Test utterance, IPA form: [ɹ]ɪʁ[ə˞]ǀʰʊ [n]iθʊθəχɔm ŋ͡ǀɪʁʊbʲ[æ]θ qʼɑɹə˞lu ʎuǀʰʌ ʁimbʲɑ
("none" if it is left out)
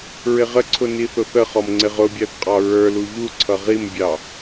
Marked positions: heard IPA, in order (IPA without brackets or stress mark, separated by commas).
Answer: ɹ, ə, n, æ